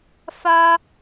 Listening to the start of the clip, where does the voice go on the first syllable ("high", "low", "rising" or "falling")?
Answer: high